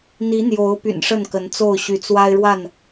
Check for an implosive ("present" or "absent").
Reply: absent